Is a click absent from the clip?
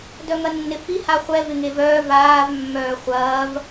yes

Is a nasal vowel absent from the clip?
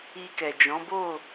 no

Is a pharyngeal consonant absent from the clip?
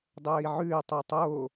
no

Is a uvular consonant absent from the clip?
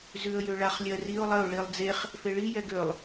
no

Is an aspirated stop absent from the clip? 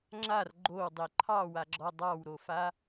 no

